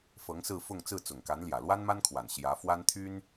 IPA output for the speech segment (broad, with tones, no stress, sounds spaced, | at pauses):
f ɤ˧˥ ŋ s ɹ̩˥˧ f ʊ˥˧ ŋ t͡s ɹ̩˥˩ t͡s ʊ˨˩ ŋ k a˧˥ n l j ä˨˩ l w a˥ n m a˥ n kʰ w a˨˩ n ɕ j ä˧˥ f w a˥ n t̪ʰ y˥ n